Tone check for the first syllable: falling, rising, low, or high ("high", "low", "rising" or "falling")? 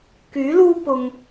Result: rising